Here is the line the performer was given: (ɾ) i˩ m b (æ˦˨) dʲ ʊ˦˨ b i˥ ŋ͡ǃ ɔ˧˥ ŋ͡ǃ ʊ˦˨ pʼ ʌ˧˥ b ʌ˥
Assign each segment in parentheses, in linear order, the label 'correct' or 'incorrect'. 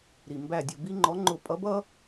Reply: correct, correct

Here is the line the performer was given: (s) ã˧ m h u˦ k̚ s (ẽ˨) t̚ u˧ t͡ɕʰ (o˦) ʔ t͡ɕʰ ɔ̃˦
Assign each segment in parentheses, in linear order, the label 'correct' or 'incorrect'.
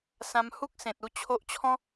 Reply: correct, correct, correct

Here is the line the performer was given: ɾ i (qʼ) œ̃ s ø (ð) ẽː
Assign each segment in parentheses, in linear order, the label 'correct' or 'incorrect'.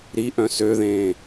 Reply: incorrect, correct

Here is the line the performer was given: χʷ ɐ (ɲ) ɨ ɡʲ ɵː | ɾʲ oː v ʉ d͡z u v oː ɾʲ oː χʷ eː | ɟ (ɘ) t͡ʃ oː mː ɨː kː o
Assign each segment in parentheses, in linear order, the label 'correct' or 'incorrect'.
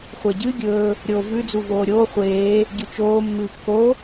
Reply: incorrect, incorrect

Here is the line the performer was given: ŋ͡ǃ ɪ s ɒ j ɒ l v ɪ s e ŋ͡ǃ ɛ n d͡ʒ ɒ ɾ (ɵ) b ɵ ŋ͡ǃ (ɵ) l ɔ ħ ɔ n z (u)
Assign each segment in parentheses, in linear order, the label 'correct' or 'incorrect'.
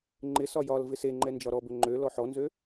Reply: incorrect, incorrect, incorrect

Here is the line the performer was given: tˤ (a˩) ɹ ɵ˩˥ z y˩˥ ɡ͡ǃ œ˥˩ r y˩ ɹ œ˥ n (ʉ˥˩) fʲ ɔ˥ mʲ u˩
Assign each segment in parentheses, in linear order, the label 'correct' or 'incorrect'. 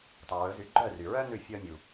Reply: correct, correct

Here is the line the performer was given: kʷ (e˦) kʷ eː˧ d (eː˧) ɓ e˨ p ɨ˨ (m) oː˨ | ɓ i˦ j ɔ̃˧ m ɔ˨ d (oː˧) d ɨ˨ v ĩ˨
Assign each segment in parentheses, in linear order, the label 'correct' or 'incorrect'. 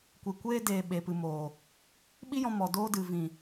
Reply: incorrect, incorrect, correct, correct

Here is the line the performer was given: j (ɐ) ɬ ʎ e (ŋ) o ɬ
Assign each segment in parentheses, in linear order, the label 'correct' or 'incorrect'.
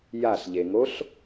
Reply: incorrect, correct

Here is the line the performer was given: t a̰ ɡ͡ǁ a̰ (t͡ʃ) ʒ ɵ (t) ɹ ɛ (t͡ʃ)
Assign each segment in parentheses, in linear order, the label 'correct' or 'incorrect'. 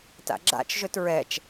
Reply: correct, correct, correct

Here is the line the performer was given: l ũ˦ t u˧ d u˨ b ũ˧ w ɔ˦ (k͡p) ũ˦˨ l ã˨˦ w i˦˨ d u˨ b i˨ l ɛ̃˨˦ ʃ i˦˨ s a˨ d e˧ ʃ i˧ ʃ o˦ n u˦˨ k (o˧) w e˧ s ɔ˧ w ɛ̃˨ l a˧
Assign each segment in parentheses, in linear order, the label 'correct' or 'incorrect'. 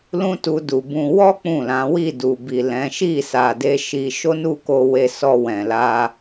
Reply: correct, correct

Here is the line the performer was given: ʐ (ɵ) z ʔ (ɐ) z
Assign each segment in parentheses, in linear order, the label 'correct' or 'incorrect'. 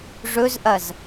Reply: correct, correct

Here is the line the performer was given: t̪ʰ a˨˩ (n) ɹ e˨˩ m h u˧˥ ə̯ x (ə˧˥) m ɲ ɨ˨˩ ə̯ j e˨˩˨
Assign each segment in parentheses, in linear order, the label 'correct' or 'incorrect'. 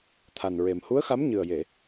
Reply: correct, incorrect

